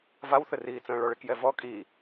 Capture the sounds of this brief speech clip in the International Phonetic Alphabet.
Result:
vawθɘriːt͡sə̃ː ɭɔɭekjɛvɔ kʼi

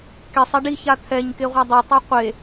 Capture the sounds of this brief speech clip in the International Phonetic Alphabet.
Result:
kesˤɛ ɖiça t̪ʰɛɲkeʁʷa dˤɛtˤa qʷe

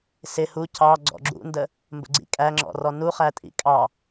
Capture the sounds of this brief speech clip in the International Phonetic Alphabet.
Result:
sɪ hu cɑ ɡ͡ǀɔ̰ɡ͡ǁṵndə | mbə̰ɡ͡ǀḭkʼæŋ͡ǁɔ̰ rɔnuχæ tʼḭkʼɑ

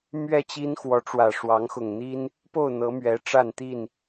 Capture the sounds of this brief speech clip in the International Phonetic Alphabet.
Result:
mɥɛ˥˨t͡ɕi˦n xwɔ˨˦ʈ͡ʂwä˨˩ʂwɑ˨˦ŋ xʊ˨˩ŋn̪i˦n | po˥˨ʊ̯n̪ɤ˨˦ mɥɛ˨˦ʈ͡ʂa˥˨n t̪i˥˨n

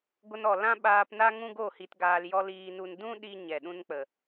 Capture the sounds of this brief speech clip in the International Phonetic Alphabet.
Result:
ɡʷə˧nɔ˨ lã˦ɓaː˧pna˦ ŋũ˦ ɡo˦˨ hi˧tɡaː˧l jɔ˧l iː˧nu˧n dũ˦ ɗi˧ ɲɛ˨ɗũ˧nk͡pə˨

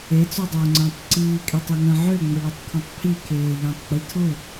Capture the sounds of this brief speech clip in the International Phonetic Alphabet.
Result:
et͡sodˤoːŋ͡ǀə̃ːtˤ ǀiːkʼytˤeŋə̃ː ʕøŋ͡mʊɭotˤkʰõtˤ pʰikʰeːʎẽtˤɡ͡bi tʰʊ

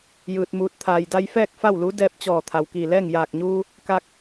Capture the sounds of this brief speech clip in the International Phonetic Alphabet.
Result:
jɯː˧t̚muː˧˥t̚ t̪ʰaː˩jda˧jfɛː˥˨k̚ fa˥˨wlu˧˥ dɛː˧p̚t͡ɕɔː˧˩ t̪ʰa˩wkiː˧˩lɛː˥˨ŋ jaː˧˩k̚ɲuː˧ | ka˧k̚

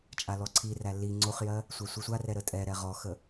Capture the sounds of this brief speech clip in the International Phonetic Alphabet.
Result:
t͡ʃʼalɔǀʰiræ li ŋ͡ǀoχjɜ | sʷasʷisʷarɛ ɾətʼɛɾɛ ʁɔxə

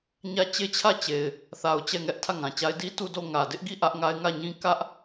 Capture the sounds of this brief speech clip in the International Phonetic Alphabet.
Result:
ɲä˦˨ t͡ɕe˦˨t͡ɕʰä˦˨ t͡ɕe˨ɪ̯ | θa˨ʊ̯ t͡ɕɛ˦˨ŋɛ˦ʔ tʰä˦˨ŋã˨t͡ɕa˦ɪ̯ di˦ tu˦˨do˦˨ ŋä˨dɪ˦ʔɡi˦˨ ʔä˦ʔŋa˦ɪ̯ ŋä˦˨ɲĩ˦ kä˦ʔ

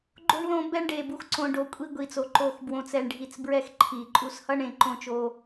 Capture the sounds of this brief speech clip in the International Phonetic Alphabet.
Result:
ɡ͡ǃo˧ɳ ðõ˧ bɛ˧ɳɖe˨bu˨x ǀõ˨ ɖo˨kʷʼi˧ɡʷi˨t͡so˨ ǃo˨xbwõ˨t͡sɛ˨ɳɖʱi˨t͡s bɹɛ˧xǃʰi˨ ǃʼu˧shʌ˦ɳẽ˧ ǃõ˧t͡ʃo˧

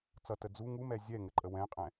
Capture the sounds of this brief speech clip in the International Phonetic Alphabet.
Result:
t͡sʌtə d͡zu ŋumɛ zʲɛŋɘǃʼə wɛ̃qʼɛ̃

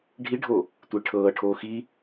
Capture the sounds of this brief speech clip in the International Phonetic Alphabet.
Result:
ɖʱiɖʱo | tʷeʈʰɤːʈʰoː xi

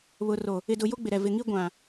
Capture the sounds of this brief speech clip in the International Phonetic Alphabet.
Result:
βʊ˨ro˨ | ɪ˨dʊ˨ jo˦ɡ͡bɪ˨ɾɛ˨ vɪ˨ŋi˦ ɡʷã˨

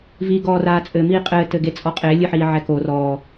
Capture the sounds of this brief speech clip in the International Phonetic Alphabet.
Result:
vi ɡɔːraːt͡sʼɘ miːqʼɘː tɘɡet͡sʼɔqʼe lʲɨħiːʕɛko rɔː

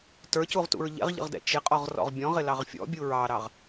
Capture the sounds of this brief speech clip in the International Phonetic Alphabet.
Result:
tə˞cuʁtṵɹ ʎɛ̰ʁʎə̰ʁdɛ̰ t͡ʃɪqʼɔʁrɔ̰ʁ bʲɔ̃ʁɪlɑʁ fʲɔ̰bʲu ɹɑɾɑʁ

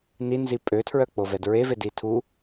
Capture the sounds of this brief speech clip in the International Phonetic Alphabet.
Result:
ninzi pʼøtʰɹœk͡povɛd ɹevedi tʰu

